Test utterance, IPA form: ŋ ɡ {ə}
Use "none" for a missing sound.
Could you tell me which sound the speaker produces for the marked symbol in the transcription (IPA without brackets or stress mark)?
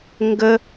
ə